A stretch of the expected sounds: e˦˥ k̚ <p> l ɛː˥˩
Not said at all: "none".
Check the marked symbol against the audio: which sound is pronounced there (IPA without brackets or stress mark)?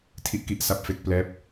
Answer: p